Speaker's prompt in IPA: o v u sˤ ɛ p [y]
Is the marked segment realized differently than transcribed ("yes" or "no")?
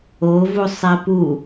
yes